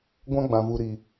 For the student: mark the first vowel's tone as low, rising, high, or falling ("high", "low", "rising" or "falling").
high